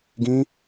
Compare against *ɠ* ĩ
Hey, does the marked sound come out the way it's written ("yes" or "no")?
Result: no